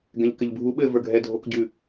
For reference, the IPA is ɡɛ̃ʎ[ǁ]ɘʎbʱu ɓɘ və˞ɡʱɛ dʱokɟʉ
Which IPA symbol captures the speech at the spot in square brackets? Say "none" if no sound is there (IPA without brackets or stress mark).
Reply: k